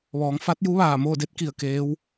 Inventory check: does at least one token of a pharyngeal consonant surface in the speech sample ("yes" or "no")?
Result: no